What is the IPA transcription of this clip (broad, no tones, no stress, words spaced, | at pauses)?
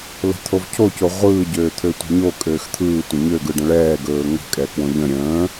lə̤t̪ʰov cʰoco ʁʷɯːɟøːt̪ʰøtʷɛ̤ ɲokʼøːx t̪ʰɯːtʷə̃ ɲøɡɯɖə̃ ɭɛːɡɵː ŋə̤kʼɛkwõ ʎə̃ ɾʲə̃ː